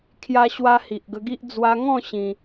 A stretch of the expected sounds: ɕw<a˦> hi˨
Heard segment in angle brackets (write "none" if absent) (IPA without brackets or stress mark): a˦